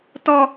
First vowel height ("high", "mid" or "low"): mid